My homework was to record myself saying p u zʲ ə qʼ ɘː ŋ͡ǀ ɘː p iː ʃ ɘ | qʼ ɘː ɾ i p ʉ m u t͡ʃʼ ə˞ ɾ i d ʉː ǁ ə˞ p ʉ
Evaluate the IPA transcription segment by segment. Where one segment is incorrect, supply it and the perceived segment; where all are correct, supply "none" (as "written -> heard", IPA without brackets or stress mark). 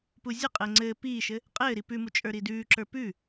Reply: none